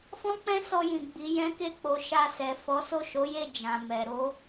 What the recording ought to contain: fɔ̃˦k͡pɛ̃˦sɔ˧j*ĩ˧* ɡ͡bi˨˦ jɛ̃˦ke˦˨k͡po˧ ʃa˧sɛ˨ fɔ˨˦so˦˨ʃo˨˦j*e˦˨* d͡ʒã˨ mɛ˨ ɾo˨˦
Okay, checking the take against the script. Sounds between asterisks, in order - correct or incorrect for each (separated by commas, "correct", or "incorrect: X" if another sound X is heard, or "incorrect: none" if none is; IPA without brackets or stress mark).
incorrect: ĩ˨, correct